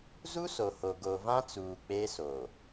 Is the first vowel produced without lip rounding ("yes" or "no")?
no